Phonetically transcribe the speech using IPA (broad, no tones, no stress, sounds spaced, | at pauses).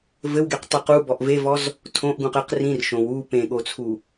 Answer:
v ɘ w ɡ e q tˤ ɨ q u b ɔ ʔ v e v ɔ z | tʰ õ ʔ ɡ ũ q ɘ q r ĩ r ʃ õ w u p ẽ ɠ o t͡sʰ u